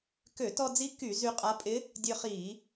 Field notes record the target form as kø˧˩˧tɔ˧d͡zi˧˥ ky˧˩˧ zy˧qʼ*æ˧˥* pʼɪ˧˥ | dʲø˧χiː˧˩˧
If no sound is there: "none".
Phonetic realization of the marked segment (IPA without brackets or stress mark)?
a˧˥